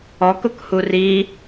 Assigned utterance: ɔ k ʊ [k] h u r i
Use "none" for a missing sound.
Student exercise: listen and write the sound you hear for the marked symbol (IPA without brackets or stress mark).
k